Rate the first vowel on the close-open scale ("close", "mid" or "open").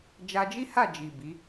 open